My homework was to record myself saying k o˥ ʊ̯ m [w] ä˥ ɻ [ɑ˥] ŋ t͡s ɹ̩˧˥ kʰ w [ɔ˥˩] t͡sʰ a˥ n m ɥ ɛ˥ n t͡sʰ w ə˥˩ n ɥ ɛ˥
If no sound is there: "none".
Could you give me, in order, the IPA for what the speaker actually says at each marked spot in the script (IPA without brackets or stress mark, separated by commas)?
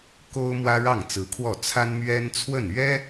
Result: w, ɑ˥˩, ɔ˥˩